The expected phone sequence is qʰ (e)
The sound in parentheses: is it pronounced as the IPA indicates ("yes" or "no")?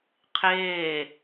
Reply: no